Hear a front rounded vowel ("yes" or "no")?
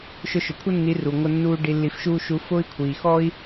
no